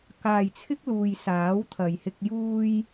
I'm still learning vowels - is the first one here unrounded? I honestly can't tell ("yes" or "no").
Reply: yes